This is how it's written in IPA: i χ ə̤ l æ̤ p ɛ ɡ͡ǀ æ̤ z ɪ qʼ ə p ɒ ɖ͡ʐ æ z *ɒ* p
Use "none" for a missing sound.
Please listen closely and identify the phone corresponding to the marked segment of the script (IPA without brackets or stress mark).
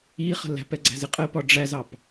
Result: ɑ